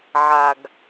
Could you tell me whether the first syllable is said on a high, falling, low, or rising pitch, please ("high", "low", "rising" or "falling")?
low